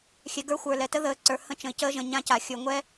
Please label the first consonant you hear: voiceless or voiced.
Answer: voiceless